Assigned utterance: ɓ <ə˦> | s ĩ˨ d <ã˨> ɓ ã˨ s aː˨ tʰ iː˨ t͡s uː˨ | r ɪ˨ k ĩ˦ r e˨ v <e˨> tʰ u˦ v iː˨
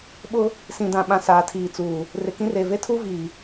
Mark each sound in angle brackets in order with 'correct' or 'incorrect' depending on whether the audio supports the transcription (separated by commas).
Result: incorrect, correct, incorrect